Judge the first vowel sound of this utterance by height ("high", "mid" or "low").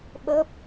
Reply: mid